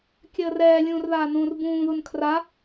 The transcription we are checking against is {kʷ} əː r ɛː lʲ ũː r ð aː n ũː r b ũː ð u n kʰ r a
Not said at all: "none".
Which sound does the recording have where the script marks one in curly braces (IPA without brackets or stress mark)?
kʲ